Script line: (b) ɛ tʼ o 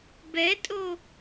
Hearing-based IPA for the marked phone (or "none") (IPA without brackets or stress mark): b